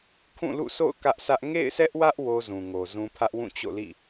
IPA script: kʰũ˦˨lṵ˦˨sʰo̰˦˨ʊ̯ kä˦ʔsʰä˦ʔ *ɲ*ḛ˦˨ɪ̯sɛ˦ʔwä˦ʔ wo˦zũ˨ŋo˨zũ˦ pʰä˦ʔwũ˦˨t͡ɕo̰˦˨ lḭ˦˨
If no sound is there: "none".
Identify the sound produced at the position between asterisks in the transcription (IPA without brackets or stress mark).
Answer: ŋ